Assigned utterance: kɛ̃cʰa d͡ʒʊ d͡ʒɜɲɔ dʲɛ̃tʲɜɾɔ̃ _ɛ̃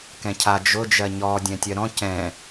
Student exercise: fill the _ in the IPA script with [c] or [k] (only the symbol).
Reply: c